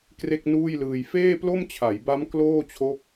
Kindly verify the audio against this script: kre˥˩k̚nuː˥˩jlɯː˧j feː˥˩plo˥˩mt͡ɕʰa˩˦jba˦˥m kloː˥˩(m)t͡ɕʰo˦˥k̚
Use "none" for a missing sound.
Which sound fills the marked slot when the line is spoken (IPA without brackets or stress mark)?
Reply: none